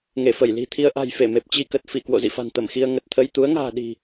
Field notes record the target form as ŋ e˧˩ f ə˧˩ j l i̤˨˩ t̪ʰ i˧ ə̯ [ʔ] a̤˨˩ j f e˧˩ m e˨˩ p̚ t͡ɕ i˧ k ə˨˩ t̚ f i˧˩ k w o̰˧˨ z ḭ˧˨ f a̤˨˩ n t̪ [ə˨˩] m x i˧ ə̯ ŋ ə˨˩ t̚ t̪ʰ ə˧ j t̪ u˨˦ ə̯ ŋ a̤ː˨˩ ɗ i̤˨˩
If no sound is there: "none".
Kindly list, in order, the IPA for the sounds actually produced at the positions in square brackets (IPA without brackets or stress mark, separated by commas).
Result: ʔ, ə˧˩